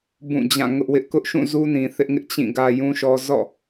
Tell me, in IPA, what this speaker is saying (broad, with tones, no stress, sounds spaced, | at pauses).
b ũ˦˨ d͡ʑ ã˦˨ ŋ ʊ˦ ʔ w ɪ˦ ʔ k ʊ˦ ʔ ʃ ũ˦˨ z u˦ n ĩ˨ θ ɪ˦ ʔ ŋ ɪ˦ ʔ t͡ɕ ĩ˦˨ ɡ ä˦ j ũ˦ ʃ ɔ˦ z ɔ̰˦˨